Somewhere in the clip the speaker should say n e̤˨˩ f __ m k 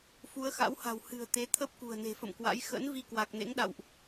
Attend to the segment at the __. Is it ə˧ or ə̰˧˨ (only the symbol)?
ə̰˧˨